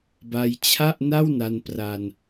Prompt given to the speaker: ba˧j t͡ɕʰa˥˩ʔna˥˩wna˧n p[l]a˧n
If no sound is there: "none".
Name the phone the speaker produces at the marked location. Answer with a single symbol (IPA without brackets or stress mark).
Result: r